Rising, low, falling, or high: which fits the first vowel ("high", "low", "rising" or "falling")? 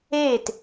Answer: falling